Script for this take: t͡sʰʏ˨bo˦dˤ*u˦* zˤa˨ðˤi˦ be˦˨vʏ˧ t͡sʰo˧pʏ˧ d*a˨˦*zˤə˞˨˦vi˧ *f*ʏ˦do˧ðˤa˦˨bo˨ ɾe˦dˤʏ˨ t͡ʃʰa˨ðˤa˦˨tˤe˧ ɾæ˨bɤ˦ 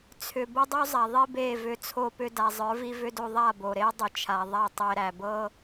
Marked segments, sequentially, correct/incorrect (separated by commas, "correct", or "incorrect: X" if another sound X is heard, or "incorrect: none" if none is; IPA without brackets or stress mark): correct, incorrect: a˨, incorrect: v